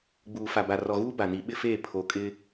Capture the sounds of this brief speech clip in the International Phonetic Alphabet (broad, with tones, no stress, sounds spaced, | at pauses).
ɡ͡b uː˨ f a˨ b a˨ r ɔ˨ ɣ uː˦ b a˨ n i˨˦ ɓ ɪ˦ f eː˦˨ pʰ o˨ kʼ ɪ˦